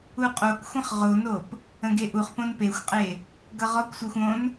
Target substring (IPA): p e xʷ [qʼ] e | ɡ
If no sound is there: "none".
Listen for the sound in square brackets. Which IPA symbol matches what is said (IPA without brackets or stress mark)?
qʼ